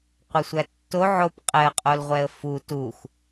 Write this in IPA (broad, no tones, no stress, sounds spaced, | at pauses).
qʷ ʌ sʷ æ tː o ʕ o p qʼ ɛ ə̯ qʼ o l ʁʷ ɛ ə̯ f u t u x